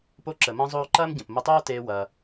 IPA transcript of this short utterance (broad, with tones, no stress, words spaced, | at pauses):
po˧ǁə˩mɐ̃˧zˤoː˧ ǃɐː˥mɟə̃˩pmə˧tˤoː˥ teː˧wɐː˩